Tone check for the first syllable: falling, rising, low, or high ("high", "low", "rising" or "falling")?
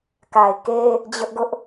low